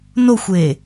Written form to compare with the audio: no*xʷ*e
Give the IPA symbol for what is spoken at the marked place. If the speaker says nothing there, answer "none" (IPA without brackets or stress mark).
xʷ